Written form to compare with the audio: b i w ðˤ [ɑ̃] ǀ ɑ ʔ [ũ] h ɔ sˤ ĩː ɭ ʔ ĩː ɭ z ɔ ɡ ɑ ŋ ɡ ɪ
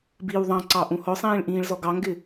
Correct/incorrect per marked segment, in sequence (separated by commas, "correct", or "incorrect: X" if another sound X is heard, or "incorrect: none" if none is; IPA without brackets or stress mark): correct, correct